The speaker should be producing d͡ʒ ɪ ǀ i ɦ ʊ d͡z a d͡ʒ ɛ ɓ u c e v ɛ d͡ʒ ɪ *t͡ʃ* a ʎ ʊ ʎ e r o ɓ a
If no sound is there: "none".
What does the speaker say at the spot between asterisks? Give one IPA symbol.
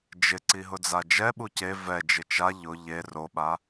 t͡ʃ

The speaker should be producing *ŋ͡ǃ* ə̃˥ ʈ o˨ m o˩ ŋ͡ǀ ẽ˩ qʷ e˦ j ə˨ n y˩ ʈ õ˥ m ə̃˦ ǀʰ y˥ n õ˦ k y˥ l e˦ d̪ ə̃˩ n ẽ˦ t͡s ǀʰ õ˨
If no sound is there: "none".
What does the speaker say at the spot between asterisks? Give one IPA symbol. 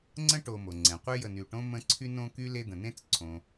ŋ͡ǀ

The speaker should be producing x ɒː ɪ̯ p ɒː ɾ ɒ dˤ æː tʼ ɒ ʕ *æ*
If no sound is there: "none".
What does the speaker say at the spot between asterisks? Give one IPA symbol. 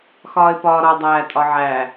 æ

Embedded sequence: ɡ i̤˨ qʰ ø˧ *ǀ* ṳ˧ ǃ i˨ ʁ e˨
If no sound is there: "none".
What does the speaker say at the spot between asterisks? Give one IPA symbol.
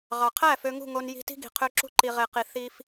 ǁ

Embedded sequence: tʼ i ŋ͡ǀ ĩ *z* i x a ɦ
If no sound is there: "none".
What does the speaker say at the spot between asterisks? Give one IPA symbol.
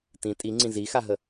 z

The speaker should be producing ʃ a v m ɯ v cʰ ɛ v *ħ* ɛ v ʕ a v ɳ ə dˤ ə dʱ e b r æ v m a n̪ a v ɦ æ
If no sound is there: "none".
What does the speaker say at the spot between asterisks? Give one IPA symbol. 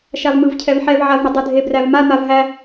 ħ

